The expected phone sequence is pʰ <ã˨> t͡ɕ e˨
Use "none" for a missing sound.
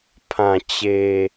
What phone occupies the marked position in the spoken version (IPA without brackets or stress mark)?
ã˨